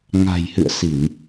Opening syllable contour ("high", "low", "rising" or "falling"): low